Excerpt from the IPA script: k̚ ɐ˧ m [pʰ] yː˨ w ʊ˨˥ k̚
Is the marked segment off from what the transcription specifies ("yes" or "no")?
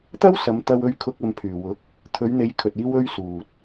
no